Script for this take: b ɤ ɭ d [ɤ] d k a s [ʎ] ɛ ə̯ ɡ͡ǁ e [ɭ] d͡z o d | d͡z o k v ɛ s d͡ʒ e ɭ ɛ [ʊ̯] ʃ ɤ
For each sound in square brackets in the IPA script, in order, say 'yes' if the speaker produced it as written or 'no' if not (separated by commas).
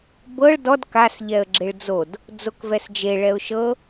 no, yes, yes, yes